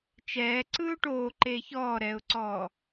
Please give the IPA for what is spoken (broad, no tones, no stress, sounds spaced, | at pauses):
t͡ʃ ɛː ǀ ɯː ʊ̯ ʈ oː ǃ eː ç ɔː ɾ ɛː ʊ̯ ǀ ɔː